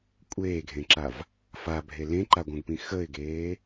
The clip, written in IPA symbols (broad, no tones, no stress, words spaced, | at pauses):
kʷʼeːɡʱẽǁav | fabʱe lẽǃaɡʷœ̃ɡpĩ xəɪ̯ɡeː